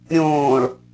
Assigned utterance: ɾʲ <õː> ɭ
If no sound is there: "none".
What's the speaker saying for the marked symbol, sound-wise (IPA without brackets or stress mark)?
õː